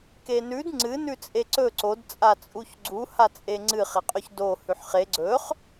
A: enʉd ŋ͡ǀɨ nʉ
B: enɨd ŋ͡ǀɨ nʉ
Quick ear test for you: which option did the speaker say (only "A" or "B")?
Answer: A